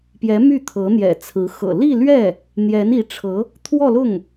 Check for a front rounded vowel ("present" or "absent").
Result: present